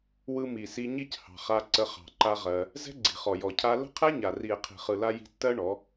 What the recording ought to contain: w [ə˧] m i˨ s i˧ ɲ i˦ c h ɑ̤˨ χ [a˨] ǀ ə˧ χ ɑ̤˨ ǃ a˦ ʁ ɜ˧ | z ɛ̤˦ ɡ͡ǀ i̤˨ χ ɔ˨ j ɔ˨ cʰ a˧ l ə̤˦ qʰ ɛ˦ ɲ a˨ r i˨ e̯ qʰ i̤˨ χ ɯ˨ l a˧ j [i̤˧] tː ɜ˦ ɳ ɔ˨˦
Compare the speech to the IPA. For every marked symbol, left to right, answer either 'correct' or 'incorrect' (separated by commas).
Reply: incorrect, incorrect, correct